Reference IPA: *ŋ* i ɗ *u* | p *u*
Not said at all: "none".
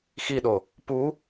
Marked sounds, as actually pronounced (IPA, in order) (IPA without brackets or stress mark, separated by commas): x, o, u